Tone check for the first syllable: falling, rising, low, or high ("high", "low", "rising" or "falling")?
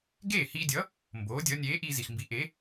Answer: falling